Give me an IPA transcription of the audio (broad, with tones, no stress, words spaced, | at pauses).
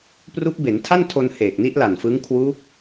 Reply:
pru˦˥k̚be˩˦ntʰa˥˩ntʰo˧n heː˨˩k̚ni˦˥ʔla˨˩nfɯ˦˥ŋ kʰwu˦˥k̚